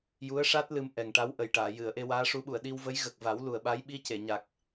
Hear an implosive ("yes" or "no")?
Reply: yes